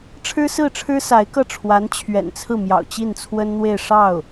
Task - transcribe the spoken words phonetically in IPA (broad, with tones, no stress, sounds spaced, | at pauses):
ʈ͡ʂʰ ɻ̩˥ s ɹ̩˥˩ ʈ͡ʂʰ ɻ̩˥ s a˧˥ ɪ̯ k ɤ˥˩ ʈ͡ʂʰ w a˧˥ n t͡ɕʰ ɥ ɛ̰˨˩ n t͡sʰ ɹ̩˥˩ m j ɑ̰˨˩ ʊ̯ t͡ɕ i˥˩ n t͡sʰ w ə˥ n n̪ w e˥˧ ɪ̯ ʂ ɑ˥˩ ʊ̯